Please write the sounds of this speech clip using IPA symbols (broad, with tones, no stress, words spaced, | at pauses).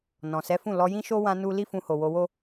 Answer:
nɔ̃˨sɛ˨˦fũ˦˨ lɔ˧jĩ˦ʃo˦ wã˦nu˦ li˦fũ˧ho˨ wo˧wo˦